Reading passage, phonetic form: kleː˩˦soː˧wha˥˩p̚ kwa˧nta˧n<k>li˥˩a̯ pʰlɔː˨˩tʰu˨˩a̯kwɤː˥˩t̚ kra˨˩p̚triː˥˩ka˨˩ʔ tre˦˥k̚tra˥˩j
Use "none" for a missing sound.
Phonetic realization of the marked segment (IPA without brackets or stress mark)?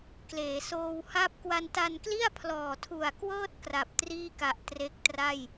k